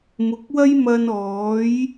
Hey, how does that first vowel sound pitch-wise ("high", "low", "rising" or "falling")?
low